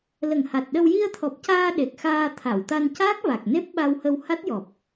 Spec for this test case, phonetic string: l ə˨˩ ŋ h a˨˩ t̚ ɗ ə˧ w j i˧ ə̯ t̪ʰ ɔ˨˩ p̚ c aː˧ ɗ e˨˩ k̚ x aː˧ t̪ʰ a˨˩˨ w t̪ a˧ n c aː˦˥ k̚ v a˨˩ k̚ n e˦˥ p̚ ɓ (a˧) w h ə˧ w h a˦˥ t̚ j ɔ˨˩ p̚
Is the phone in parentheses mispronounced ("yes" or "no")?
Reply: no